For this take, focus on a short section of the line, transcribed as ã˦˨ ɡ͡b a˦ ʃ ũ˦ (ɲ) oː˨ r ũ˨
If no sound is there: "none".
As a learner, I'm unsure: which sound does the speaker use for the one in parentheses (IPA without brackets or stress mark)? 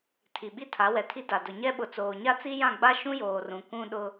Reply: j